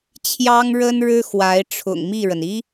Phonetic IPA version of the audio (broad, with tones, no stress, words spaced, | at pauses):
t͡ɕʰjɑ˥ŋɻə˥nɻɻ̩˥ xwa˧˥ɪ̯ʈ͡ʂʰʊ̰˨˩ŋ mi˥˩ɻə˩n i˥